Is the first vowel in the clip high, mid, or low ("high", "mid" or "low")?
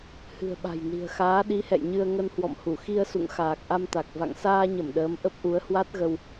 high